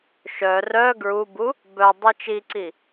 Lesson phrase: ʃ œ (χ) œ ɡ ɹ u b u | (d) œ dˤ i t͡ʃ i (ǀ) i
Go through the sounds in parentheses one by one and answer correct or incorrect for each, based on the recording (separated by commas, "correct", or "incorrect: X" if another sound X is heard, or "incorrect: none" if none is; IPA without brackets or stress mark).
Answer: incorrect: r, incorrect: b, correct